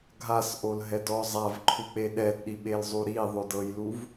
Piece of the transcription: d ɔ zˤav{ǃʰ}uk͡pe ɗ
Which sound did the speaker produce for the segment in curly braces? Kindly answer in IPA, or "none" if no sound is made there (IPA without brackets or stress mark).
ǃʰ